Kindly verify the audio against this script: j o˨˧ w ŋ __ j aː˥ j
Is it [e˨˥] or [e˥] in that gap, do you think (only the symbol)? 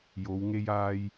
e˥